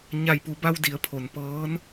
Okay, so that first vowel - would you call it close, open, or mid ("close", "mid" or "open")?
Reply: open